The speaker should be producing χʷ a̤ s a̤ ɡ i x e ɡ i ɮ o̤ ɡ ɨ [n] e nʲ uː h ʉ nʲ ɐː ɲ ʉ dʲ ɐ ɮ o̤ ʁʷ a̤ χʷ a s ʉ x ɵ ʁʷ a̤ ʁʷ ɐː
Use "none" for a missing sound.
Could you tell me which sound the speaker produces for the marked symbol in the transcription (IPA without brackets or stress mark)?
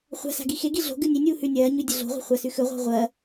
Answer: nʲ